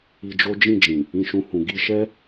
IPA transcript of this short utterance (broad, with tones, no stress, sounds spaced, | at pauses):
i˧ d͡ʒ o˦ d͡ʒ ĩ˦˨ d͡ʒ ĩ˨ | ĩ˧ ʃ ũ˧ h ũ˨ ɡ i˧ ʃ ɛ˦